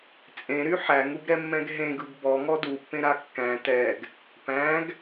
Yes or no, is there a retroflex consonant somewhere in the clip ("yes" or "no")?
no